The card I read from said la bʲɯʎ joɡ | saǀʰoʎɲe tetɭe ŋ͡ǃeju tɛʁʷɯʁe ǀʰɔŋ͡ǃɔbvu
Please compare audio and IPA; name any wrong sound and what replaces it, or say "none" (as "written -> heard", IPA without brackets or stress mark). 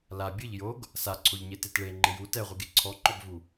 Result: ʁ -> ɡ